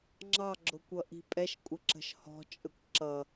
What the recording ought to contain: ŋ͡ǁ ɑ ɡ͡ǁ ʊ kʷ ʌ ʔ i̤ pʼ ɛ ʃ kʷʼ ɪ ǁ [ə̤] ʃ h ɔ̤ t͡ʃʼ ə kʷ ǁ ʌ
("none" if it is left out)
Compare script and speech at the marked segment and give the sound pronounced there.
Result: ə̤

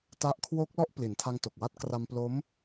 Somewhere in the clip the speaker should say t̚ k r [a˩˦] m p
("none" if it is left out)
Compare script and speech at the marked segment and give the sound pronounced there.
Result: a˧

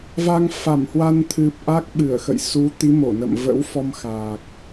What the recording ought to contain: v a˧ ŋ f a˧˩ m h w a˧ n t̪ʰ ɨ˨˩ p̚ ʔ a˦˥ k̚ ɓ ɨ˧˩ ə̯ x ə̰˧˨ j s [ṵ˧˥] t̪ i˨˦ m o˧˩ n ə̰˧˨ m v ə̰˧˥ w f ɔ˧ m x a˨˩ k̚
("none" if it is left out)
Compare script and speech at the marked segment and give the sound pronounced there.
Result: u˨˦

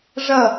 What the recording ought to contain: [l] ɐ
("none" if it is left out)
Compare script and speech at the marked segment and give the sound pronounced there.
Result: ʐ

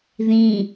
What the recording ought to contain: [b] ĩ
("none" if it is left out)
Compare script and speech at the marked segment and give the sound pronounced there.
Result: ð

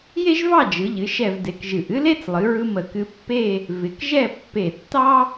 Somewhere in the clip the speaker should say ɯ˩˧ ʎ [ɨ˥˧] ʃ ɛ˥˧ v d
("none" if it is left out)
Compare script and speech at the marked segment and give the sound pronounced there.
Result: ɨ˩˧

